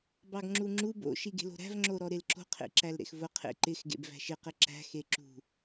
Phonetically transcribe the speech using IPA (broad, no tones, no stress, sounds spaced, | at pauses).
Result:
b ɑ ɡ ŋ͡ǁ u ŋ͡ǁ u b o̰ ʃ i ɡ e̤ l o̤ ɾ æ̤ v ŋ͡ǁ o ɾ ɔ ɾ e l ǁ o̤ qʰ ḛ ǁ æ l ɾ ḛ x v ʊ qʰ ḛ ǃ ɪ x ɡ ḛ b v æ̤ ʃ ɪ q ɪ ǁ æ̤ x e ǁ ṳ